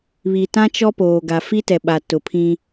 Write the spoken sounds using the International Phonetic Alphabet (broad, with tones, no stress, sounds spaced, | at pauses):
β i˨ t ã˦ t͡ʃ ɔ˦ p oː˨ ɡ a˨ f i˦ t ɛ˨ ɓ a˨ t ʊ˨ pʰ ĩ˦